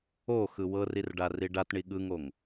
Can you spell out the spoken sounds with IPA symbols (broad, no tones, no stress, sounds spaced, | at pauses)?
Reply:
o x ɯ w ɤ r i r ɖ a r i ɖ a t ɳ i ɠ ɯ ŋ o ŋ